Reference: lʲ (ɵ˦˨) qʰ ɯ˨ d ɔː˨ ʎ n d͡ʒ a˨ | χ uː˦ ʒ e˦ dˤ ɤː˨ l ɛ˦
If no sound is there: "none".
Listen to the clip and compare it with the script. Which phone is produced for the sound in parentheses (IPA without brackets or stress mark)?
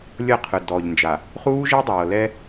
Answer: ɤ˦˨